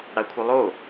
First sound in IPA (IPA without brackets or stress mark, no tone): ɽ